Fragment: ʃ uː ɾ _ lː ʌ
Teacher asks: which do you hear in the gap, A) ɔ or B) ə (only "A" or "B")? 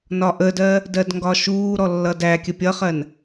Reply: A